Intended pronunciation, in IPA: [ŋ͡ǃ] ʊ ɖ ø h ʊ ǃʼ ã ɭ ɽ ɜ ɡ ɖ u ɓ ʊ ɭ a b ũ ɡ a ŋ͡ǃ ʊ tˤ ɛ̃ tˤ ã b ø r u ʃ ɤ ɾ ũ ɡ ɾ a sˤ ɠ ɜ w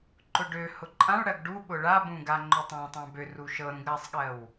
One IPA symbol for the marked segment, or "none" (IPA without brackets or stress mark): ǃ